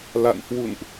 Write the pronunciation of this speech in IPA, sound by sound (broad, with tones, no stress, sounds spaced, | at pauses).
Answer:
l a̰˧˨ n h w ṵ˧˨ n ʔ